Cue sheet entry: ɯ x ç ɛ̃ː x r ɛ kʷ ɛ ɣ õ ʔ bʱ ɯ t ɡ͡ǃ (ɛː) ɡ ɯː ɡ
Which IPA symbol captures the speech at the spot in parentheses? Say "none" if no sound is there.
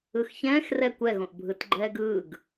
ɛː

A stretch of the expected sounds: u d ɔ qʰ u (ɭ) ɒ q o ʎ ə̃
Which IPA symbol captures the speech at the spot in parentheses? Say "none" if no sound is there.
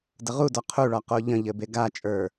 ɭ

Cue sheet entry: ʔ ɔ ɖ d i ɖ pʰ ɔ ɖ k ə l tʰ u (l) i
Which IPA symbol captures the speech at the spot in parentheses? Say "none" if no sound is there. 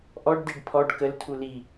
l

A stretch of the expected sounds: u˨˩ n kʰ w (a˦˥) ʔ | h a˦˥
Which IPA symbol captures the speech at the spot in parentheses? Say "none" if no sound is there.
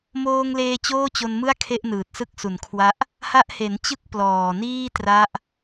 a˦˥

